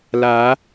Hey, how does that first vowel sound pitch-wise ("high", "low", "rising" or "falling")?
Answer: rising